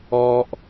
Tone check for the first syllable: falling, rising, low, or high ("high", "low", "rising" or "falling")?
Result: high